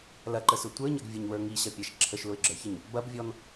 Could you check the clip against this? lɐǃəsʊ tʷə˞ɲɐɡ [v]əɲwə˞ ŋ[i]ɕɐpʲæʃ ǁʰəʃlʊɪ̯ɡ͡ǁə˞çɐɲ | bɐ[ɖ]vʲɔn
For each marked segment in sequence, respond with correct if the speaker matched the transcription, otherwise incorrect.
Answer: incorrect: vʲ, correct, incorrect: b

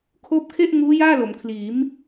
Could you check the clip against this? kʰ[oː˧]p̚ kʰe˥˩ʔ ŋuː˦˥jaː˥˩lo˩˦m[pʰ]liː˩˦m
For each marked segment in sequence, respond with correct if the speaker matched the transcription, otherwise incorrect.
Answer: incorrect: oː˥˩, incorrect: kʰ

